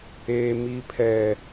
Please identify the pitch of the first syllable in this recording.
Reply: low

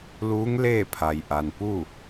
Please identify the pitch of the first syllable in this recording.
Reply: rising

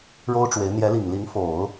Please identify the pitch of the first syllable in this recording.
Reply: high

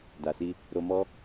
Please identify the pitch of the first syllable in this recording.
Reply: low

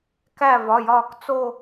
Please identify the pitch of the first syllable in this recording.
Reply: falling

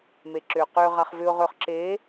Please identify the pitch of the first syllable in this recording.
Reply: low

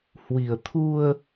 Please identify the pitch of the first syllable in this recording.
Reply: low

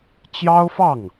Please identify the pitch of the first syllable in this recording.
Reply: high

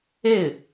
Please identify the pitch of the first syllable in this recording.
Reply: falling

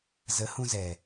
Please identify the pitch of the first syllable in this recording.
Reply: rising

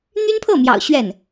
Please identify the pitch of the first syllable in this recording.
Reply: high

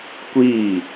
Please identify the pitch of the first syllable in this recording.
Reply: falling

